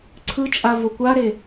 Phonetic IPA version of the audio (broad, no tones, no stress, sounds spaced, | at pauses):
ǀʰ ɯ t͡ʃʼ a v o kʷ a ɾ e